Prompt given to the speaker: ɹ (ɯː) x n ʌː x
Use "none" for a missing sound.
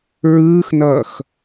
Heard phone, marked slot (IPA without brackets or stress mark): ɯː